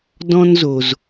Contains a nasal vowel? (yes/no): yes